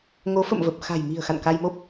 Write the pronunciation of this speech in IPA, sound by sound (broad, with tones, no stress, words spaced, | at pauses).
ŋo˨˦fə̰˧˨mvə˨˩p̚ xa̤˨˩jmi̤˨˩ə̯ xa̰˧˨nka˧jmo˦˥p̚